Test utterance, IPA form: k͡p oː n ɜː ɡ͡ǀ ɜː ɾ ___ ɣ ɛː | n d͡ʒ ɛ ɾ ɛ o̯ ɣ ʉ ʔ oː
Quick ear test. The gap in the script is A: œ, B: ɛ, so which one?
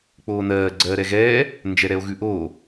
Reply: B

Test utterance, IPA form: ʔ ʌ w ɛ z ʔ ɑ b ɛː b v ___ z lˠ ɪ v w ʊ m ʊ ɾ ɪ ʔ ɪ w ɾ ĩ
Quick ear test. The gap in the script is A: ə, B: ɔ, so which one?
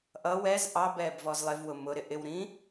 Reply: B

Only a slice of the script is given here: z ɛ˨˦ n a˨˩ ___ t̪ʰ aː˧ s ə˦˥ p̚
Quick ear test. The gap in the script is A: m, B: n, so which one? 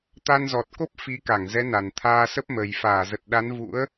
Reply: B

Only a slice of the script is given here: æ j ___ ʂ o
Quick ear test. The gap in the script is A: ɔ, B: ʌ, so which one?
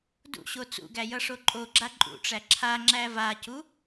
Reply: B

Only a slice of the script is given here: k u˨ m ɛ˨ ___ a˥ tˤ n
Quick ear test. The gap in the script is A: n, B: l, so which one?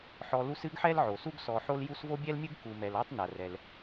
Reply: B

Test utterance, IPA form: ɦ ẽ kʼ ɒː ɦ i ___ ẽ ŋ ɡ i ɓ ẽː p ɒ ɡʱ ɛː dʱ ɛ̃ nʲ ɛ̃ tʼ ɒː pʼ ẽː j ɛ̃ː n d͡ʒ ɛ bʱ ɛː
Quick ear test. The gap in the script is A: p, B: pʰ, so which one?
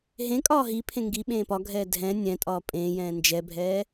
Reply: B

